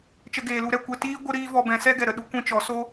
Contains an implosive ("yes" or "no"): yes